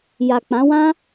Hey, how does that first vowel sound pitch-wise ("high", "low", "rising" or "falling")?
low